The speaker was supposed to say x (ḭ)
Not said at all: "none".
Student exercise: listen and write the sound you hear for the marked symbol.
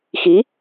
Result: i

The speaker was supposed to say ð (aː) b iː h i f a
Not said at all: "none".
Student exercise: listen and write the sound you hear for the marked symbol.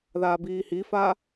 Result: aː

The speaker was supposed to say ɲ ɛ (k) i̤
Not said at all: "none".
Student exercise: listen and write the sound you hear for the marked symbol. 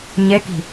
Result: k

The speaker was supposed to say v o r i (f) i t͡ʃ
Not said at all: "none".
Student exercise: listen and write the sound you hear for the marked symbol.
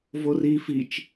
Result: f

